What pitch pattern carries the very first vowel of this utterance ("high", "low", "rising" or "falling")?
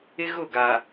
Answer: high